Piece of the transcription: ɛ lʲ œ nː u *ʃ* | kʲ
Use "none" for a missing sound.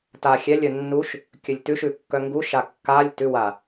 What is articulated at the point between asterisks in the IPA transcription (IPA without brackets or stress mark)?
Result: ʃ